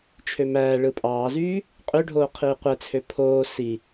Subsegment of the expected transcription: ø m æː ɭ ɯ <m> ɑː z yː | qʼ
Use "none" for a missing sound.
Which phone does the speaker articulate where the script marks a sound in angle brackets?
pʼ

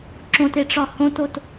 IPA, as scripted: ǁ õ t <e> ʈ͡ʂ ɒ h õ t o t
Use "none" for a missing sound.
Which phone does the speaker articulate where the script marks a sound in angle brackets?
e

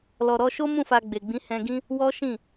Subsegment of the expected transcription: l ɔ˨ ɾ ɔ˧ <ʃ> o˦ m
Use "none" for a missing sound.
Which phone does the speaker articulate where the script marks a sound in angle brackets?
ʃ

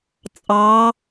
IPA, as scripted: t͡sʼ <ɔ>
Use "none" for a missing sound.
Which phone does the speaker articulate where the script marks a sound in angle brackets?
ɑ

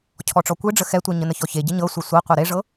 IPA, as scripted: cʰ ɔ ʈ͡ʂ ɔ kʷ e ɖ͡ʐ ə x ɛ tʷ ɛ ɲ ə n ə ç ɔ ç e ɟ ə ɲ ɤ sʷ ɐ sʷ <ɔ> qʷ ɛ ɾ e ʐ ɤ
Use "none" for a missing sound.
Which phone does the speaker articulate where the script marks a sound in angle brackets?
ɤ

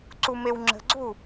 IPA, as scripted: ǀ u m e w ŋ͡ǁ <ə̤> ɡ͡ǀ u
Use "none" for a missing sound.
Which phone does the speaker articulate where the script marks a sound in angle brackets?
ə̤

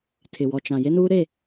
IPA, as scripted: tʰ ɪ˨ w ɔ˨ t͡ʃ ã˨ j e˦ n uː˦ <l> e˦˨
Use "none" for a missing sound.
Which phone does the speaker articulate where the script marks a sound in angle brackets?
ɾ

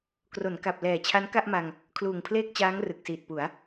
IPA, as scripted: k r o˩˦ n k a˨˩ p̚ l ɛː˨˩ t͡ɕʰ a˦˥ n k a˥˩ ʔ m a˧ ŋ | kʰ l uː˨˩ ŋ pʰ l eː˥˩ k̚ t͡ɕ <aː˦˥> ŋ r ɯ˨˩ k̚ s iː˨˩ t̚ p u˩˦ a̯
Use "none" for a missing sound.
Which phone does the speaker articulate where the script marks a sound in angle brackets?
aː˦˥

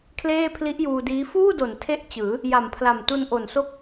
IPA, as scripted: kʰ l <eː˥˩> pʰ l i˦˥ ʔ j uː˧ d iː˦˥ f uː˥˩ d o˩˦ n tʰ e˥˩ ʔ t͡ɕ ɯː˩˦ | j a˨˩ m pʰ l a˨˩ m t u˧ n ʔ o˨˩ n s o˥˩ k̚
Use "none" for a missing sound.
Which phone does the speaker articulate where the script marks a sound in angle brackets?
eː˥˩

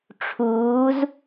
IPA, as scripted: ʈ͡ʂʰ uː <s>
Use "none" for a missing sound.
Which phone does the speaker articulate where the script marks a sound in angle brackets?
z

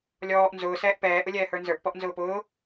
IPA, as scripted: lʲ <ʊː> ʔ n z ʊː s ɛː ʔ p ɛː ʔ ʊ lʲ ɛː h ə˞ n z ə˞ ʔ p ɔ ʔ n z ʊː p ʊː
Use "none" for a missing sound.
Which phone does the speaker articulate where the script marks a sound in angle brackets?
ɔː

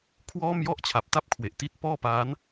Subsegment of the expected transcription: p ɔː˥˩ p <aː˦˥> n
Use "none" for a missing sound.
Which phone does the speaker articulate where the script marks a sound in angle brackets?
aː˦˥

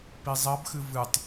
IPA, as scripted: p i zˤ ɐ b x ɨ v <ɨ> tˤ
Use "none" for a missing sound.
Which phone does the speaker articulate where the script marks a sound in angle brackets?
ɨ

